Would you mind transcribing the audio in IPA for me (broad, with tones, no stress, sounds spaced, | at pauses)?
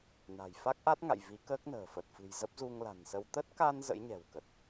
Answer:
n a̤˨˩ j f a˦˥ k̚ ʔ a˦˥ t̚ ŋ a̰˧˨ j v i˨˦ k əː˦˥ k̚ n ə̤ː˨˩ f ə˨˩ t̚ f ɨ̤˨˩ j z ə˦˥ p̚ z u˧ ŋ l a̤˨˩ n s ə˧ w t̪ ə˦˥ t̚ k a˧ n z ə̰˧˥ j ɲ ɛ̤˨˩ w k ə˨˩ t̚